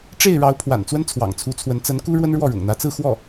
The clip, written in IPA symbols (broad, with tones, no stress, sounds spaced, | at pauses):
ʈ͡ʂ e˥˩ ɪ̯ ɻ ɑ˧˥ ʊ̯ pʰ w a̰˨˩ n t͡s w ə˥ n t͡sʰ w ɑ̰˨˩ ŋ t͡sʰ u˧˥ t͡sʰ w ə˧˥ n t͡s ə˧˥ n k u˥ ɻ w ə˥ n ɻ w ɔ˥˩ ɻ ʊ̰˨˩ ŋ n̪ ä˧˥ t͡s ɹ̩˥˧ x w ɔ˥˩